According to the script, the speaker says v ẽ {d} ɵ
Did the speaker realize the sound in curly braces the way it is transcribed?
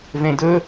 yes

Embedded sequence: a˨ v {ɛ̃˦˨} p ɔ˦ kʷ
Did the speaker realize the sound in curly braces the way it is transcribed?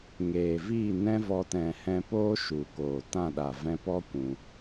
no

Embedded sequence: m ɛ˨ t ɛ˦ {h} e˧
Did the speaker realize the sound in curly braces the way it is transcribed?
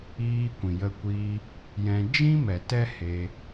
yes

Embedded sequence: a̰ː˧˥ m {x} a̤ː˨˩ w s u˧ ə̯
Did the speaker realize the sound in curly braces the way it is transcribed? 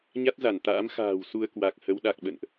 yes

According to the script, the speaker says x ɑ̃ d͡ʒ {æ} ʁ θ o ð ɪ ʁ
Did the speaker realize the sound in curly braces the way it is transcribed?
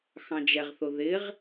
no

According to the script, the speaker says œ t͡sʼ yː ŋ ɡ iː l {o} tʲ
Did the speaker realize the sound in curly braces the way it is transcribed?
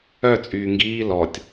no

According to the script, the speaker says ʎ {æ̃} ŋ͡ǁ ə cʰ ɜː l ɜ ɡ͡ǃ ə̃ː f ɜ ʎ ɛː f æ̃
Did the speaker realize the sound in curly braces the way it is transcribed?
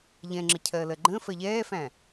no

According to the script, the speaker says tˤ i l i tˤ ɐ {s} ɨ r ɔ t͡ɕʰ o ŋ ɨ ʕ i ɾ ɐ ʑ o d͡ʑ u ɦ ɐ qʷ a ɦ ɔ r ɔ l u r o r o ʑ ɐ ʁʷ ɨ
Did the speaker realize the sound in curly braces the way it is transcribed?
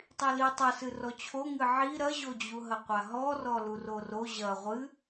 yes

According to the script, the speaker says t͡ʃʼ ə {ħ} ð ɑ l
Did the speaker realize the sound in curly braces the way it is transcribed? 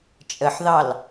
yes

